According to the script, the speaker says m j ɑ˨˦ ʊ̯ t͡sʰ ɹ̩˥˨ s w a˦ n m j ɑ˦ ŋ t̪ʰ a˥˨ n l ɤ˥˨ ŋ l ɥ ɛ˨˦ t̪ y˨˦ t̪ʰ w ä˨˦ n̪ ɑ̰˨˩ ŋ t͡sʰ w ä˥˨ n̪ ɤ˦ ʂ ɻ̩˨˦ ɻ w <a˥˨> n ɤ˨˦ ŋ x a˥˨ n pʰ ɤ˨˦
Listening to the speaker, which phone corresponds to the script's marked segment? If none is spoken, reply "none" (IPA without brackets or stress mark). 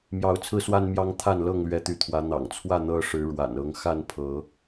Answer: a̰˨˩